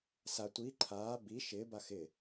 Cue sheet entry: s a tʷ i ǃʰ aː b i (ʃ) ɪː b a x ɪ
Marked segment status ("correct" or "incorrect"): correct